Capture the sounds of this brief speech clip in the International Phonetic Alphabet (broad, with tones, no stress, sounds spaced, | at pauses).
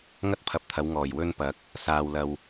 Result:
ŋ ɐ˥ t̚ pʰ ɐ˨ p̚ t̪ʰ ɐ˨˥ w ŋ ɔː˨˩ j w ɵ˥ n p ɐ˨˥ k̚ | s aː˨ w l ɐ˨ w